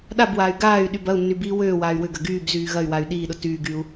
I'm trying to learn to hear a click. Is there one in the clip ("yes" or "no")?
no